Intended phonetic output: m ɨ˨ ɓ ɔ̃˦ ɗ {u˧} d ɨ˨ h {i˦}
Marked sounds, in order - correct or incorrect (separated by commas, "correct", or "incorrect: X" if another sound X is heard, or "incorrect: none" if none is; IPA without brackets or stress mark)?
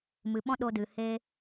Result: incorrect: o˧, incorrect: e˦